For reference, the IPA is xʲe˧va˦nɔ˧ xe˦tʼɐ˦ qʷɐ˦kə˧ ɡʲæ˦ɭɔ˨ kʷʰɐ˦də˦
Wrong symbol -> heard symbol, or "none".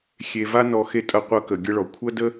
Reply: æ˦ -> ə˦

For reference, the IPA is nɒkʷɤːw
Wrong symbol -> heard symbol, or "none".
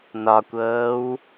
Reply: none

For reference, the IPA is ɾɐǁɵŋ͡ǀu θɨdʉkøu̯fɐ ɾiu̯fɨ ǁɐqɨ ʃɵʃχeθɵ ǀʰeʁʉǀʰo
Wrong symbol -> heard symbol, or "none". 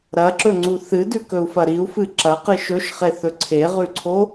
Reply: ø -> ɵ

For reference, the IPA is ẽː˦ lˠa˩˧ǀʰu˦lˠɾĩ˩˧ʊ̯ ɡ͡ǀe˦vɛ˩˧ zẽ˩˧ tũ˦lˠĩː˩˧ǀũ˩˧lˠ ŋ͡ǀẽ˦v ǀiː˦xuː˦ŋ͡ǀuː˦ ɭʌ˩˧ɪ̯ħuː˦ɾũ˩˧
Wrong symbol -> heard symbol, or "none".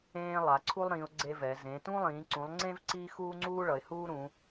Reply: ħ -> h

